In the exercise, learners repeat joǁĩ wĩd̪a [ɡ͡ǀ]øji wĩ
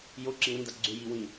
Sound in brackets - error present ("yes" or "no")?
no